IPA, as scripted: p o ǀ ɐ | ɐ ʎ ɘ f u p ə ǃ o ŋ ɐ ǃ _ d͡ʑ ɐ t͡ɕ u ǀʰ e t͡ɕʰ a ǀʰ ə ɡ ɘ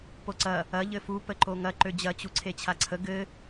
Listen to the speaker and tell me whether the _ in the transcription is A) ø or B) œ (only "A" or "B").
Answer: A